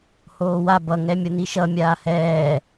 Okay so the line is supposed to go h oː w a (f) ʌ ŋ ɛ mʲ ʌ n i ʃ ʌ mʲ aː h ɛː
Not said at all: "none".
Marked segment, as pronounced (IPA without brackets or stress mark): b